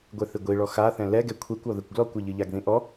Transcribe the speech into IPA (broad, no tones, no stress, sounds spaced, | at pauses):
ɡʷ ɛ θ ɨ ɡʷ i ɭ ɔ x a θ ɛ̃ l ɛ ɡ ɛ kʷʰ e kʷ ɔ ð ɘ kʷ ɡ l ɔ kʷ ɘ ʎ ɨ ʎ a ɡ ð ĩ ʔ ɔ